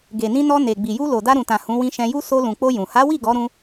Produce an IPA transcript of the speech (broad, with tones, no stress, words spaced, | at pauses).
ɡe˨nĩ˧nɔ˧ ne˨ ɡ͡bi˨ju˧ lo˨da˧ɾũ˨tã˨ hũ˨˦wĩ˧ʃɛ̃˧ju˦ so˧lũ˨k͡po˧ jũ˨ ha˨˦wi˦˨ ɡɔ˨˦ɾũ˧